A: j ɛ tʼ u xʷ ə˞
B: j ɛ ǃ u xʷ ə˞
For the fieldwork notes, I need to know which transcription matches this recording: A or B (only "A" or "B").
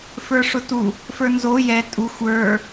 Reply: A